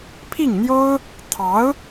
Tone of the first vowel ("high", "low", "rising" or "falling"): falling